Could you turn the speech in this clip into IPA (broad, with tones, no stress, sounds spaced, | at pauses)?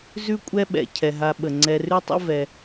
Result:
z ʉ˦ kʷʼ ɛ˦ ɓ ɛ̰˩ cʰ ɛ˩ ɦ a˨ ɓ ə˩ ŋ͡ǀ ɛ˨ r ʉ˥ tˤ ə̰˥ v ɛ˨